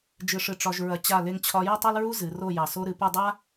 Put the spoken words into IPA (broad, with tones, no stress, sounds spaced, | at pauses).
d͡ʒ ɨ˨ ʂ ɨ˨ ʈ͡ʂ ɒ˨ ʒ ɹ ɐ˨ t͡ɕ a˦˨ l e˦ ŋ t͡ɕʰ ɒ˦ j ɐ˦ tˤ o˦ l ɹ u˦ z ɨ˨˦ r o˦˨ j ɑ˨ s o˦ ɾ ɨ˨ p ɨ˦˨ dˤ a˦